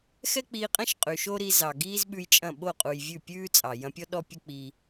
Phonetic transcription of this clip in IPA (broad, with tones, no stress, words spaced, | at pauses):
xɛ˦k͡piː˧qʼɐ̃˦ʃ qʼʉ˨ʃo˦ɾi˧ zɑ˨ɡiː˦zɓʉ˧jt͡ʃʼɐ̃˦˨ ɓo˦˨qʼu˨j vʲʉ˦˨pʲʉː˦t͡sʼɑ˨ jɐ̃˧pʲɔ˦ ɗɔ˦pʲə˦k͡pi˧